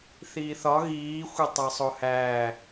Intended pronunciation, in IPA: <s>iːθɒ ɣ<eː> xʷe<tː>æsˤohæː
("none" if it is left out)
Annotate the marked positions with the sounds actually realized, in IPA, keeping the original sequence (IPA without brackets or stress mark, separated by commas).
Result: θ, iː, tˤ